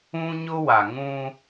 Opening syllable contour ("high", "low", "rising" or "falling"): high